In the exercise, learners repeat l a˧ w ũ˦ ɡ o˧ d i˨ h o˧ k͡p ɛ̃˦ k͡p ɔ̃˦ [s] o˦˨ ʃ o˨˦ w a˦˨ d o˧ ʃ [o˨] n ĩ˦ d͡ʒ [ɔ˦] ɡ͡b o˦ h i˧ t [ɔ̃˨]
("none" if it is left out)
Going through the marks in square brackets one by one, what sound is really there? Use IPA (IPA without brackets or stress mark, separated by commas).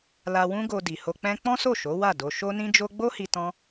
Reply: s, o˦, o˦, ɔ̃˦